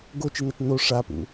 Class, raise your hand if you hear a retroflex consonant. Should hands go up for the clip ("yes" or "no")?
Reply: yes